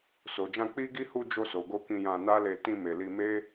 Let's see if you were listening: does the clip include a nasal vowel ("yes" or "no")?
yes